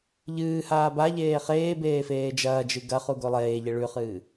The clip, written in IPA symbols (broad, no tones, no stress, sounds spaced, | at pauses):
ʎ ɨː h aː b a ʎ eː χ eː b eː f eː d͡ʒ ɐː d͡ʒ ɨ ɡ ɐ χ u ɡ o lˠ eː ʎ e ɭ ʉ χ ɨː